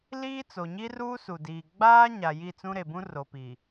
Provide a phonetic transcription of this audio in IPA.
liː˦ t͡so˨ɲi˦ruː˦ su˨diː˨ ɡ͡baː˦ ɲa˨ji˦˨t͡sũ˦ ɾe˨bũ˦ ro˨pi˨

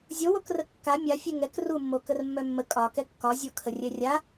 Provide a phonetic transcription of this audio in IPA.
zʲowokrə kːa mʲa fʲɛŋɛk rumːokər mːœmːə kʼɒkɛ kːɒzʲokʰə rʲɛrʲa

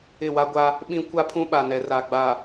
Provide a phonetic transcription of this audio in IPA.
ɪ˦˨ wa˦ɡʷa˦ | ɓĩ˦ kʷa˦pʰũ˦ɓa˨ nɛ˨ra˨ɡ͡ba˨

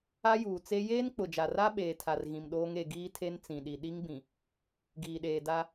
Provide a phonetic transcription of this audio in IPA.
a˦juː˨t͡se˦ jeː˦nk͡pʊ˨d͡ʒa˨ra˦ ɓeː˨tʰa˨r ɣĩ˨mɗoː˦ŋ e˨ɡiː˦tʰe˦n t͡sĩ˨ɗi˨ ɗi˦ŋbĩ˨ | ɡiː˨ɗeː˨da˦

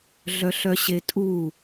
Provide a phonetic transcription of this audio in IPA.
ɮœɬœɕetʼu

